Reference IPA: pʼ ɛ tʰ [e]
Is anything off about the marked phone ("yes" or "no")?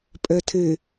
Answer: no